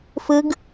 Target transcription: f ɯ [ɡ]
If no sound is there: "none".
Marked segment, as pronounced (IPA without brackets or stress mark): ɡ